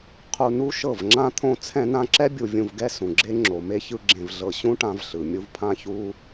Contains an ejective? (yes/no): no